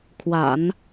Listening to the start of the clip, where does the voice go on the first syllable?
low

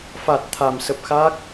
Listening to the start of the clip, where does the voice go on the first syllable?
low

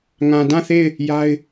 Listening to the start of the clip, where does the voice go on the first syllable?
low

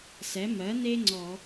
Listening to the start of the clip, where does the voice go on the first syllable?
rising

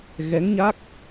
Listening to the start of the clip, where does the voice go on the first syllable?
rising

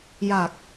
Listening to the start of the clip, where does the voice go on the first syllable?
low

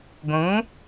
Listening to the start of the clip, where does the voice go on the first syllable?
rising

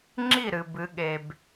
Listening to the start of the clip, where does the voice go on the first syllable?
falling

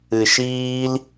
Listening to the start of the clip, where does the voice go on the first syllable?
low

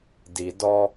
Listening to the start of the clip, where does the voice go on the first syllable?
low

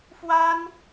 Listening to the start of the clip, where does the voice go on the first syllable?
high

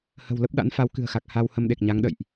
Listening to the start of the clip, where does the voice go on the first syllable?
low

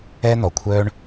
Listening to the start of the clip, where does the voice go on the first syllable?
high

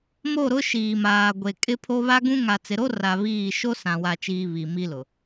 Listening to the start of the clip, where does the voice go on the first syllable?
falling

